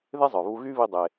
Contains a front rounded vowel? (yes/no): yes